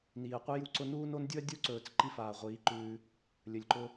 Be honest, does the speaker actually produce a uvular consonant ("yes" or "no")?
yes